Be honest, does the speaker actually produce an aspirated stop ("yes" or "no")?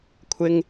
yes